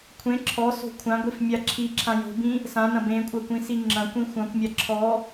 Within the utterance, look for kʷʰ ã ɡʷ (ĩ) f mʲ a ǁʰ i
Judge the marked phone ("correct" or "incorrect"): incorrect